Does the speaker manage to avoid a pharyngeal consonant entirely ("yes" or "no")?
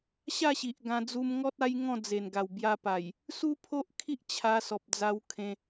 yes